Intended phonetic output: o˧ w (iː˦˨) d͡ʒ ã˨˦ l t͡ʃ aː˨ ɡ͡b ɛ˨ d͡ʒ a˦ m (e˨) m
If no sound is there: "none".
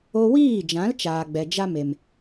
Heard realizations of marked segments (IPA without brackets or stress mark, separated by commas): iː˦˨, e˨